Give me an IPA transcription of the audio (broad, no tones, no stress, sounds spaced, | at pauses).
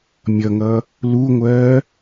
mʲ ʌ ŋ ʌ | l u ŋʷ ɜː